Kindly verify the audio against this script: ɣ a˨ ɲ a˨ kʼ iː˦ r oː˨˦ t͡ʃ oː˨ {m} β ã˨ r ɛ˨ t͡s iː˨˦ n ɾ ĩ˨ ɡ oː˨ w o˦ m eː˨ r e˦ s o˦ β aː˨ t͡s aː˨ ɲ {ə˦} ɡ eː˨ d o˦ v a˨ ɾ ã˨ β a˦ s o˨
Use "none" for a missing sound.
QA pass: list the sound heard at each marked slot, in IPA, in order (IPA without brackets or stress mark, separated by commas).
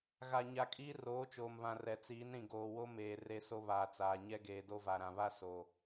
m, ɛ˦